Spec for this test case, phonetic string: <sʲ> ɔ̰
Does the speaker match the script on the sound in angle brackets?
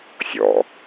yes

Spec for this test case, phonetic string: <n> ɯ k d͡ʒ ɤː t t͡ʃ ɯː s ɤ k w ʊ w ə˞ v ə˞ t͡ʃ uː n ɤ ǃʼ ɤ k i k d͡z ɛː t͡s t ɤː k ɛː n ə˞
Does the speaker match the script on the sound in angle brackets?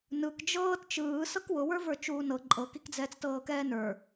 yes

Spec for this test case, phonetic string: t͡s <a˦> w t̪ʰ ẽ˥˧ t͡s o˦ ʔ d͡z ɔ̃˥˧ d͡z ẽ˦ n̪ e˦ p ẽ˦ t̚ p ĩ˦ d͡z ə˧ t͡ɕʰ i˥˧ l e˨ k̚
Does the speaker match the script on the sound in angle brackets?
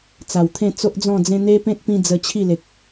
no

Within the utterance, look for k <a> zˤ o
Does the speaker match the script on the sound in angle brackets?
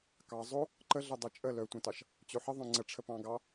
no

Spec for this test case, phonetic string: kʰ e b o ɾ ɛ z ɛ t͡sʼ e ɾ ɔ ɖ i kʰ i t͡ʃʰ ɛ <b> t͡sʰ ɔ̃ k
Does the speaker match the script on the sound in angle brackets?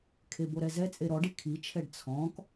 no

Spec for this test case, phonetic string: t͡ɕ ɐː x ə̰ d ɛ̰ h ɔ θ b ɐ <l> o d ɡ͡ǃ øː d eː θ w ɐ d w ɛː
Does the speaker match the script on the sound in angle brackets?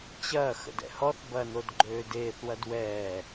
no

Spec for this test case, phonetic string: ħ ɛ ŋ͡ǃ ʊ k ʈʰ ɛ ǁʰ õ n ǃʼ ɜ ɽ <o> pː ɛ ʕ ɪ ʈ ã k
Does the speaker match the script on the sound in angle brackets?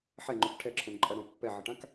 no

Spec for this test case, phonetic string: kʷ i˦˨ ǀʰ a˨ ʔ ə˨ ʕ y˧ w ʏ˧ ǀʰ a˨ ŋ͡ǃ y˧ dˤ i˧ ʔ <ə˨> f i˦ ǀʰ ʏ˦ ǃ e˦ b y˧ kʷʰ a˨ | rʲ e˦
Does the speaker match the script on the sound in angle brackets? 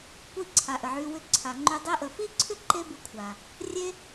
yes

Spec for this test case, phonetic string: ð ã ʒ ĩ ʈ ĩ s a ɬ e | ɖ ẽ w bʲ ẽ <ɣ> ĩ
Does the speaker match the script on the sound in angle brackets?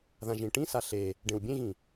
yes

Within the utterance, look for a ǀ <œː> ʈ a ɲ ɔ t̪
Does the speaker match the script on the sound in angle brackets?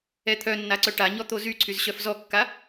no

